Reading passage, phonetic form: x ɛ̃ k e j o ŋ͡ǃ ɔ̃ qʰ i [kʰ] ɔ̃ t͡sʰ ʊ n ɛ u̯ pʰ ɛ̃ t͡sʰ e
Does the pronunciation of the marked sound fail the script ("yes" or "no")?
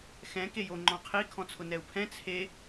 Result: no